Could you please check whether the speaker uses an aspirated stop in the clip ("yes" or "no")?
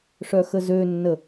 no